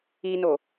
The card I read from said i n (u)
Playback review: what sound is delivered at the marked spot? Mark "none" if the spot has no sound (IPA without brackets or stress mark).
o